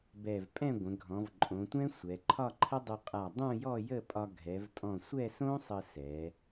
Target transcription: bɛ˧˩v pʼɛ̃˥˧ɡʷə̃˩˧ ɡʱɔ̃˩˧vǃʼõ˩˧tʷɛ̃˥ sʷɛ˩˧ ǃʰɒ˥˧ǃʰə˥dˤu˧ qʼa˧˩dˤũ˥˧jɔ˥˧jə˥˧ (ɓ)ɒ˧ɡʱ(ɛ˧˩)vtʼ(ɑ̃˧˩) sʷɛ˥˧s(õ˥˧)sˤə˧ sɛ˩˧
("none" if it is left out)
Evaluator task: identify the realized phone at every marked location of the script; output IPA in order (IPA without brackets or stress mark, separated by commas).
pʼ, ɛ˩˧, ɔ̃˧˩, õ˥